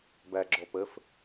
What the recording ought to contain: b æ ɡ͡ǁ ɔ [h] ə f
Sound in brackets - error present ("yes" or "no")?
yes